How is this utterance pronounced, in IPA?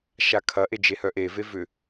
ʃ a kʰ ɐ ʔ e d͡ʒ e h œ ʔ e v e v ʏ

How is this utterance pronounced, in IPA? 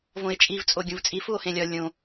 v õ e̯ t͡ʃʼ i v t͡sʼ o ɡʲ ũ v t͡sʼ i f u o̯ h ẽ lʲ ɒ lʲ õ

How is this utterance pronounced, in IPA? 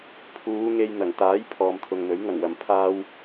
pʰ uː˨˧ ŋ e˧ j n̪ ɐ˨˩ ŋ t̪ aː˨˥ j pʰ ɔː˨ m t̪ʰ ʊ˨ ŋ n̪ ɵ˨˥ ɥ ŋ ɐ˨˩ ŋ w ɐ˨˩ m pʰ aː˧ w

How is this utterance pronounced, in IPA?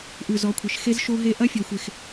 ʔ ʉ˨ z ɔ˨˦ kʷʰ e˨ ʃ x e˦ z ʃ o˦ ɦ e˦ ʔ ɐ˦ fʲ ɔ˨ xʷ e˨ x

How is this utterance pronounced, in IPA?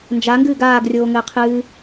n d͡ʒ a ŋ ɡ ɨː ɡ aː ɡ rʲ oː ŋ ɘː qʰ ɨː

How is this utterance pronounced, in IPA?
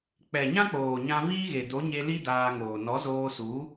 k͡p ɛ˨ ɲ ã˦ k͡p oː˨ ɲ ã˧ v iː˦ ɣ e˨ d o˨˦ ɲ e˧ l i˦ d aː˧ ŋ oː˨ n ɔ˨˦ z oː˧ s u˨˦

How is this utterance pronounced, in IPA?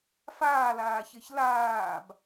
f aː l aː ç e ç l aː b

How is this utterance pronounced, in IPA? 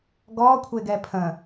ɡ ɔ kʷʰ e ɡ ɛ pʰ ə̃

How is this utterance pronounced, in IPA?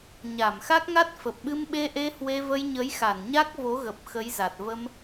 ɲ a˧˩ m x a˦˥ k̚ ŋ a˦˥ t̚ f ə˨˩ p̚ ɓ ɨ˧ m ɓ e˧ ʔ e˧ h w e˧ v ə˧ j ɲ ə˨˦ j x a˧˩ n ɲ a˦˥ k̚ v o˨˦ ɣ ə˨˩ p̚ x ə˨˦ j z a˨˩ t̚ v ə˧ m

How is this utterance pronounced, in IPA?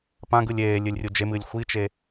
p ã ɡ ɯ lʲ eː lʲ ɨ lʲ rʲ u d͡ʒ e m ɨː lʲ xʷ i t͡ʃ e

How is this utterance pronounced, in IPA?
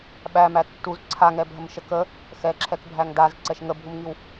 ɓ æ m æ tː u z ǀʰ a ŋ ɛ bʱ ə m ʃ ə k ə | x ɛ ǁʰ ɛ k bʱ æ ŋ d a z ǀ ɛ ʃ ŋ ə bʱ u m ŋ i w

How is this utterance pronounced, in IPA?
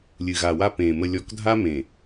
lʲ ɨ˨ ɣ a˨ w a˦ p ẽ˨ m ə˨ lʲ ɔ˨ k dʱ a˦ m ẽ˨

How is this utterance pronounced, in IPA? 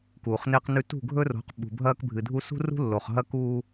k uː˨ χ n e˦ q n ʉ˦ t ṳ˦˨ ɡʱ ɵ˦ r o̤˨˦ q ɓ ṳ˨ bʱ ɐː˦ k bʱ ɨ˨ dʱ u˦ s ṳ˦ r ṳ˦ lː o˨ χ ɦ ɐ˦ k uː˦

